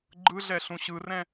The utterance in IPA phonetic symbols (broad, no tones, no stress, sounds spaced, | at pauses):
ɡ͡ǃ ɯ ɮ ɛ ɬ ũ ɕ ɯ r ɛ̃